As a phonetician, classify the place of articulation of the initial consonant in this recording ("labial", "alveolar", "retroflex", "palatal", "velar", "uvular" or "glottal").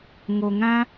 velar